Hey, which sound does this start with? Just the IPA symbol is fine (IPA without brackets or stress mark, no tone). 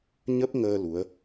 ɲ